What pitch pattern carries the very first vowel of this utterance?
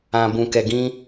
low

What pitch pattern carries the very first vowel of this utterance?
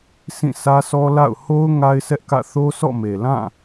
falling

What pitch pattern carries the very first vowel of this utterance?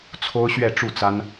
high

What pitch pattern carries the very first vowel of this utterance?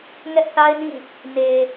high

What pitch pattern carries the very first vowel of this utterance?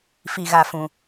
low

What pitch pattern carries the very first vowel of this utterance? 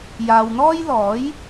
low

